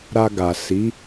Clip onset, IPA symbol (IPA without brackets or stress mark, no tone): ɾ